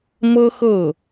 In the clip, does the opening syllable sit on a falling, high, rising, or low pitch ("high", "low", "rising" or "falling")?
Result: high